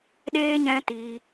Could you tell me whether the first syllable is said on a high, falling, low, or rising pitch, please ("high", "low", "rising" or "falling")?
high